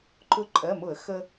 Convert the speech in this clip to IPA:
ǃʊ˧ ǃʼɜ˩˧˩mʊ˧˩˧ə̯ xə˧

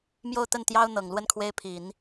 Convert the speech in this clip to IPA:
mjo˥˧ʊ̯ t̪ə˥˩nt̪jɑ˥ʊ̯n̪ɤ˨˩ŋ lwə˥˩nkʰwe˥ɪ̯ pʰi˨˩˦n

